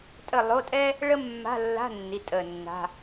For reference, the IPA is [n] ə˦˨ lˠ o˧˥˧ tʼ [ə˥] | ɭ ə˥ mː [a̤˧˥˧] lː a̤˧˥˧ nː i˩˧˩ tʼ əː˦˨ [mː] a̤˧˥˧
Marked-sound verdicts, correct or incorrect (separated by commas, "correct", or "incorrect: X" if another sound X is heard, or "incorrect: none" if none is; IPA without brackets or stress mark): incorrect: tʼ, incorrect: ɛ˥, correct, incorrect: nː